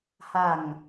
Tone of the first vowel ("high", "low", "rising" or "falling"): low